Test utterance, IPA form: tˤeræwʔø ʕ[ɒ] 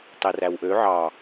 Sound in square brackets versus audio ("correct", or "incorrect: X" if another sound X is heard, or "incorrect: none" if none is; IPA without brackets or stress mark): incorrect: ɑ